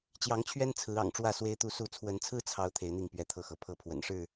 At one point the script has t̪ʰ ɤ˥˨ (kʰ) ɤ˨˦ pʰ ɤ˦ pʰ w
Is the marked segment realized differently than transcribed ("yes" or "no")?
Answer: yes